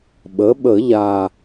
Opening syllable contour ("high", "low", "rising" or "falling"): rising